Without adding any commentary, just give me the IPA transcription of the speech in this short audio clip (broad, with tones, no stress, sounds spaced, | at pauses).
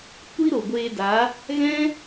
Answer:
kʷ i˦ ɾ o˨ ɡʷ eː˧ d a˨˦ | ɣ ɛ̃˦